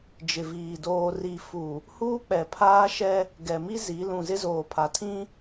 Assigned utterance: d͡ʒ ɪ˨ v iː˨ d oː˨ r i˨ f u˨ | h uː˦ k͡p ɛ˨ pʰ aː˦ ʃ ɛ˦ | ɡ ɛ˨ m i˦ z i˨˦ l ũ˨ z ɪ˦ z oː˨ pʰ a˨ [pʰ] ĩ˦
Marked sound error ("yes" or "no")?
yes